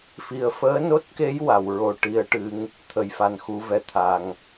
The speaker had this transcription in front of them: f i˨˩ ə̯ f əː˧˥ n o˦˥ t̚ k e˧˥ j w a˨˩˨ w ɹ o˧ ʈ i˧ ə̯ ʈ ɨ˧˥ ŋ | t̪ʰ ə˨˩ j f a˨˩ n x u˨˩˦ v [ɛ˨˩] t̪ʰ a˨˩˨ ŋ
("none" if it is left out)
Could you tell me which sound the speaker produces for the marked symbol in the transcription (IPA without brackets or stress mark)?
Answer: ɛ˨˩